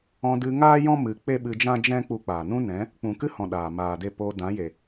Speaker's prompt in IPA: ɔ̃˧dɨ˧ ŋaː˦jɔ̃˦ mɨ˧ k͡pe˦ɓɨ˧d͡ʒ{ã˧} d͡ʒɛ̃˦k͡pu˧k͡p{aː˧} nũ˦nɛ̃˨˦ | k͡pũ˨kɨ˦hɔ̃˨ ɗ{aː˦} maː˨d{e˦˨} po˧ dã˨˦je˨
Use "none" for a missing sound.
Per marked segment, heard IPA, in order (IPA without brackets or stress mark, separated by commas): ã˦, aː˨, aː˨, e˦˨